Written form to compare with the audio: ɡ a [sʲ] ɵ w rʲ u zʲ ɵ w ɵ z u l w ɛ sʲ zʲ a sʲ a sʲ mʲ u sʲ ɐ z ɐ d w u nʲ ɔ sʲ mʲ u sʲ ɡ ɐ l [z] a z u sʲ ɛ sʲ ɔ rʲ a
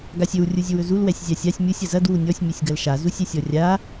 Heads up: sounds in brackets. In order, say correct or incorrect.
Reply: correct, incorrect

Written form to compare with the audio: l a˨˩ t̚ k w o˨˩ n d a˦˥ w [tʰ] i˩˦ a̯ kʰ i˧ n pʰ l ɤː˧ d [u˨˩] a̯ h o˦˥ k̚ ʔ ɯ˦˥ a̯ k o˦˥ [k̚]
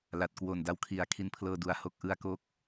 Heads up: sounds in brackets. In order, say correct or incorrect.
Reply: incorrect, correct, correct

